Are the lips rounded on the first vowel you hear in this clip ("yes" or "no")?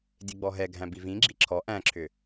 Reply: no